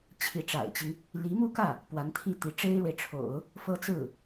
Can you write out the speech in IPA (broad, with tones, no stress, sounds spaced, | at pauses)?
t͡ɕʰ i˧˥ ʈ͡ʂ a̰˨˩ ɪ̯ t͡ɕ i˦ ŋ | l i˧˥ m u˥˧ k ä˥˩ | p w a˧˥ n t̪ʰ i˥˩ t̪ i˧˥ ʈ͡ʂ e˥ ɪ̯ ɻ w e˨ ɪ̯ ʈ͡ʂʰ o̰˨˩˦ ʊ̯ | f ɤ˥ t͡s ɹ̩˥˩